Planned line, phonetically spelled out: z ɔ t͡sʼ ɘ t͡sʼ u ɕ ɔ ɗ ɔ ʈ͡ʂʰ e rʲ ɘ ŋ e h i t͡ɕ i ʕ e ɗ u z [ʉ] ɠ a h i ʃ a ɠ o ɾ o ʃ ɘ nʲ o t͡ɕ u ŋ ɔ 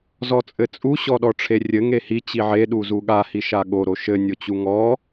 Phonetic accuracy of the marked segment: incorrect: u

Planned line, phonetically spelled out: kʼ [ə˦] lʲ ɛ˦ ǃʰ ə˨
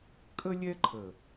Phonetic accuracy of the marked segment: correct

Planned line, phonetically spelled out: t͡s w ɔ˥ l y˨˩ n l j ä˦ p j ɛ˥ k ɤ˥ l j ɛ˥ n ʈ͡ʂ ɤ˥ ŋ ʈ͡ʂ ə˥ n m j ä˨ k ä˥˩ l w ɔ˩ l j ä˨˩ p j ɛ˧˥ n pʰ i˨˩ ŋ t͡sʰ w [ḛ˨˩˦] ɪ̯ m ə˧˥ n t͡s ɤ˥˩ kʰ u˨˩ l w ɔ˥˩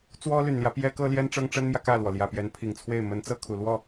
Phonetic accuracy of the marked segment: incorrect: e˥˩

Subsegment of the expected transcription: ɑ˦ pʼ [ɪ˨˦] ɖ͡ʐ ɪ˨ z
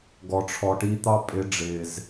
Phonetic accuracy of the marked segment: correct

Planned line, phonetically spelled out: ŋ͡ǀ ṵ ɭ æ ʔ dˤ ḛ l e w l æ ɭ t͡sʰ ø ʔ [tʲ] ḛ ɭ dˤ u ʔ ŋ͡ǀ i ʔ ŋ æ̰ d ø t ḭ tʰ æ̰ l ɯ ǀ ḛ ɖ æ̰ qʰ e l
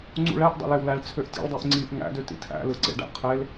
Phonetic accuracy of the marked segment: correct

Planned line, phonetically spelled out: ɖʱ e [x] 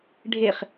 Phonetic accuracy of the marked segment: incorrect: χ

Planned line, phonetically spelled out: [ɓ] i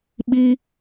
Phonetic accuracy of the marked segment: correct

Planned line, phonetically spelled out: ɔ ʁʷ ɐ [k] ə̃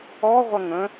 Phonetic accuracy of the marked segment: incorrect: ŋ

